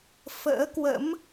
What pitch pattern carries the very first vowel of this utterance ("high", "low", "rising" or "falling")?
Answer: rising